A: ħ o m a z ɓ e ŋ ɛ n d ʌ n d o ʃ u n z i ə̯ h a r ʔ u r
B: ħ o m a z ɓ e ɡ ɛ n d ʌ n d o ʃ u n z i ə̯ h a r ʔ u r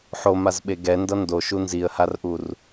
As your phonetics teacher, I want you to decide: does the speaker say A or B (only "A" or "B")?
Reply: B